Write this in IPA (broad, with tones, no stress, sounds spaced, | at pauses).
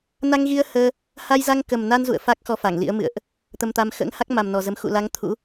n a˧ ŋ ɣ i˧ ə̯ h əː˧ | h a˧ j z a˧ ŋ k ə˨˩ m n a˧ n z ṵ˧˨ ə̯ f a˦˥ k̚ x ɔ˧ f a˧˩ ŋ l ḭ˧˥ ə̯ m ɨ̰˧˨ ə̯ ʔ | t̪ ə˧ m t̪ a˧ m x ə̰ː˧˥ ŋ h a˦˥ k̚ m a˨˩ m n ɔ˨˩ z ə˨˦ m x ṵ˧˨ l a˨˦ ŋ t̪ʰ ṵ˧˥